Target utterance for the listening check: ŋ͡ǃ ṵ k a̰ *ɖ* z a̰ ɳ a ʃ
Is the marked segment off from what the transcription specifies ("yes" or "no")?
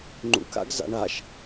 yes